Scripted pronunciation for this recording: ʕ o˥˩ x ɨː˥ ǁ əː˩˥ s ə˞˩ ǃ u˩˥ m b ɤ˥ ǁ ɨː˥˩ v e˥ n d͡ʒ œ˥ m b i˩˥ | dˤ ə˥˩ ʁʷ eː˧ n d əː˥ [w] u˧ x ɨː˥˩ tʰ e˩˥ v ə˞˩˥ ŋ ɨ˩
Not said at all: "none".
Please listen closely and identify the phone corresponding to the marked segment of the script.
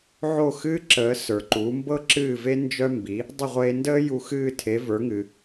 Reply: j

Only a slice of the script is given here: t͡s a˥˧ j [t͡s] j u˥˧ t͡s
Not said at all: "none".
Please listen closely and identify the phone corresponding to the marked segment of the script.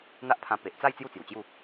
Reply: t͡s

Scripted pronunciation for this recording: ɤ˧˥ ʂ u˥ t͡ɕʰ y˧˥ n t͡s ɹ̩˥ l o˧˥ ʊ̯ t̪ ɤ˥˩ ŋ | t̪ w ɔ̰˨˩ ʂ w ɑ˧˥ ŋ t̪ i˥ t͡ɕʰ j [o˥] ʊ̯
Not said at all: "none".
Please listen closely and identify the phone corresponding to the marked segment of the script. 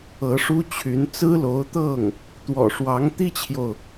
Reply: o˨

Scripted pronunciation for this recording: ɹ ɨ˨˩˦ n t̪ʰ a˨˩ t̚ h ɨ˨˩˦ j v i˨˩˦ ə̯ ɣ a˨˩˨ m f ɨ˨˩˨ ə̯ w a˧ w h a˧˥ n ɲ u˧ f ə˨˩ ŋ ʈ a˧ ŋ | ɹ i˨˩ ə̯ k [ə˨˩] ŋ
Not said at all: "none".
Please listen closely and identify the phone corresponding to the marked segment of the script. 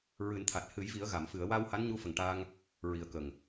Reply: ə˨˩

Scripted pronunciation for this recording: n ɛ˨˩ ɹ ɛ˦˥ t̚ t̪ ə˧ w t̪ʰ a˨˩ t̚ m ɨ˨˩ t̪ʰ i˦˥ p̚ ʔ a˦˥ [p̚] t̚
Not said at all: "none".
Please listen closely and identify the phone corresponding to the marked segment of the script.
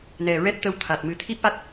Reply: none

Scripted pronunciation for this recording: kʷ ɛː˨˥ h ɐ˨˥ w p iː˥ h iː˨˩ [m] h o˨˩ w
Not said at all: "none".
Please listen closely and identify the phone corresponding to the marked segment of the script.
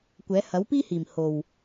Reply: m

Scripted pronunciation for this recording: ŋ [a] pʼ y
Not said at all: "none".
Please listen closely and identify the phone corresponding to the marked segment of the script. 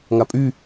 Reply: a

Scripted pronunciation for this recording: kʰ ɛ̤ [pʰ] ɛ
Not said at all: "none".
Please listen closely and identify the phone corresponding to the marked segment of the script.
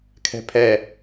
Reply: pʰ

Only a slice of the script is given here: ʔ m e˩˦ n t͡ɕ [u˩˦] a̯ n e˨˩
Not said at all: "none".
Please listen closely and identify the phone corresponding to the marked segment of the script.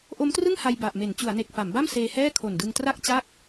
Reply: u˩˦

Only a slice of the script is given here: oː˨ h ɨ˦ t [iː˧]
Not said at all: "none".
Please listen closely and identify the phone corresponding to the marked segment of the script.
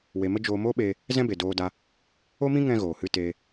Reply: eː˧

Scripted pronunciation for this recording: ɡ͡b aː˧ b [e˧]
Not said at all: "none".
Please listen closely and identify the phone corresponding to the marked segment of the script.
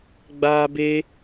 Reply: e˧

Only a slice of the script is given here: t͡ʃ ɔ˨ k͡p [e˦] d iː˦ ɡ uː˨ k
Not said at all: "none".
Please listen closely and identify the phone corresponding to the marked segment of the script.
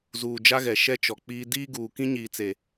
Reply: i˦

